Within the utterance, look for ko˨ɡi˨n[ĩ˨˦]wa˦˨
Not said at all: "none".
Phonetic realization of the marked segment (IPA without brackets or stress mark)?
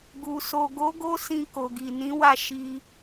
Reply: ĩ˨˦